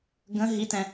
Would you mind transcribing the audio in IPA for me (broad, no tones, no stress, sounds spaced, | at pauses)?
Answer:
ɡ ə̃ ɦ i t ɛ̃